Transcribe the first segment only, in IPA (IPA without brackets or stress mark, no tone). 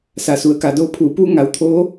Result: s